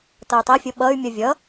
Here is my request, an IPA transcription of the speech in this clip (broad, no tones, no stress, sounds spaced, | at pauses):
t ʌ u̯ tˤ ɛ fʲ o ɓ ʌ y̯ mʲ ʌ vʲ ʌ